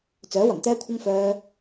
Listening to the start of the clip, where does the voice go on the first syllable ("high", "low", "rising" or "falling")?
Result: rising